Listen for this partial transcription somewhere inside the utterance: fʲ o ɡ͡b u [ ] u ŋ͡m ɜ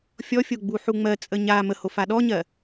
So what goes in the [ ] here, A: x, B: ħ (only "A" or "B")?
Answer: B